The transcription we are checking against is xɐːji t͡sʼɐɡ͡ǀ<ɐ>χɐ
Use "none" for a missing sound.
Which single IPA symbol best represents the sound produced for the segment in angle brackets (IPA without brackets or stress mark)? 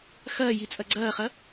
ɐː